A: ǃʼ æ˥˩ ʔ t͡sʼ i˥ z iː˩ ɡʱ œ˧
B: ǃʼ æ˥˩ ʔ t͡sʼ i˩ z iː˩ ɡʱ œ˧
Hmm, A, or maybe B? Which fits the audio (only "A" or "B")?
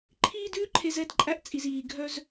B